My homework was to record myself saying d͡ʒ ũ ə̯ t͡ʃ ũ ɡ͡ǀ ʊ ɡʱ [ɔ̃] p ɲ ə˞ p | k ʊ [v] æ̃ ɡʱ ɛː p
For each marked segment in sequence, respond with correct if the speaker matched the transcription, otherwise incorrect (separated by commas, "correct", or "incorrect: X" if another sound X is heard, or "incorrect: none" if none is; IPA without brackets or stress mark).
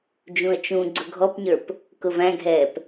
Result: incorrect: ɔ, correct